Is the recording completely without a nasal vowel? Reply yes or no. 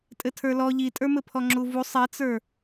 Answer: yes